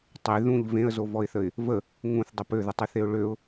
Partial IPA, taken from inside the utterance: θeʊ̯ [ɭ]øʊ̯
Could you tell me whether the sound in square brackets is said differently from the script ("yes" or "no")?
no